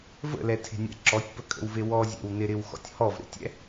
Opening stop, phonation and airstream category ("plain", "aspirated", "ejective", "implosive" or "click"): aspirated